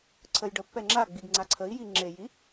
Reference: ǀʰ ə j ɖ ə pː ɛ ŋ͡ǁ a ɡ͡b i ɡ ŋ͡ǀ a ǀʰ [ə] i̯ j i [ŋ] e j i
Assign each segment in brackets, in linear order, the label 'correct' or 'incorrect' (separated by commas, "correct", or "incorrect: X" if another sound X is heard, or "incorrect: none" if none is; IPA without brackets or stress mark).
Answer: correct, incorrect: ŋ͡ǁ